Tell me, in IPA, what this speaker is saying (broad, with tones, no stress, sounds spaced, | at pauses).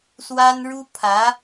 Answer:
s w a˥ n ɻ u˥ pʰ ä˧˥